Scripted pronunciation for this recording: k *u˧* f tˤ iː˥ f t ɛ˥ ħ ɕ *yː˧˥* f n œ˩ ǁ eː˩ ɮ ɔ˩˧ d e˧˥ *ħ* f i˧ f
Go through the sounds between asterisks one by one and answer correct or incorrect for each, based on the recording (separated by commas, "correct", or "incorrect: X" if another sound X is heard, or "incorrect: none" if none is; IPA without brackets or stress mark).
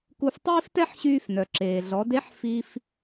correct, incorrect: yː˧, correct